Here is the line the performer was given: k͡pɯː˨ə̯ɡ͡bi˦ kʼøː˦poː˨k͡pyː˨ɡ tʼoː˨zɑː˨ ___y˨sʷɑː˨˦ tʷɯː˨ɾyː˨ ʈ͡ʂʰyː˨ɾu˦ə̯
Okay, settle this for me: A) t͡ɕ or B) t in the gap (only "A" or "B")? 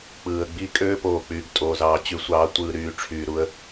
A